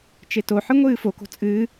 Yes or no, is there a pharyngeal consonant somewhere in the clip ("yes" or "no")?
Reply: yes